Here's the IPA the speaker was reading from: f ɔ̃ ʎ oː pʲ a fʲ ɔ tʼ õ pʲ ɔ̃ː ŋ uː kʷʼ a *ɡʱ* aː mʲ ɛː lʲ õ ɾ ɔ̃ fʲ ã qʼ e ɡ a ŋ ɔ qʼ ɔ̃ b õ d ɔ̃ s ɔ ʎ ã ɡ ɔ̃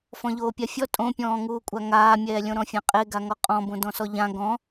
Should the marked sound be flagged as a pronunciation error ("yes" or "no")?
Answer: yes